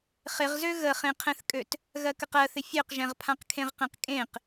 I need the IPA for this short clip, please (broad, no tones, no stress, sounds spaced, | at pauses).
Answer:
χ ɪ ʁ z ø ɣ ə χ ẽ qʰ ɛ̃ θ kʼ ø t | ɣ ɜ k ə q ɜ θ ɪ fʲ ø q ʒ ɛ̃ ʁ pʰ ã q kʰ ẽ ʁ q ẽ q kʼ ẽ q